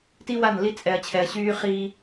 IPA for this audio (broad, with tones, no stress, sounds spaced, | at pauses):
t i˦ w a˦˨ n l i˦ t͡sʼ ɛ˨ ɐ̯ t͡ɕʰ ɛ˨ ɐ̯ ɕ yː˦ χ iː˦